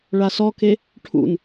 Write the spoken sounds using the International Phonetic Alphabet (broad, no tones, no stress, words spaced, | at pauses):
ɭasɔke | ʈʰṵn